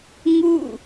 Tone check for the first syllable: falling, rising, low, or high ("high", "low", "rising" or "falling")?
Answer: falling